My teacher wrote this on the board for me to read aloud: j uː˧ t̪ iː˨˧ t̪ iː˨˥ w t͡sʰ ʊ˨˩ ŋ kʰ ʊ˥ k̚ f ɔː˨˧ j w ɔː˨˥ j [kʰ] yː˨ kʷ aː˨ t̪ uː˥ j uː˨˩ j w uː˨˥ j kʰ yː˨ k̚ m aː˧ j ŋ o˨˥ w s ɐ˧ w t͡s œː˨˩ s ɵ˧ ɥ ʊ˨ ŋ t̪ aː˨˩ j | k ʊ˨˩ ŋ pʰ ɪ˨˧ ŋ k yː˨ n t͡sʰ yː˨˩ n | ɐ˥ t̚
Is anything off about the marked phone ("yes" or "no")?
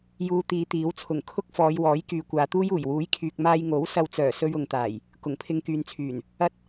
yes